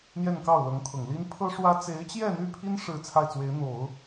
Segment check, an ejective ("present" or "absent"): absent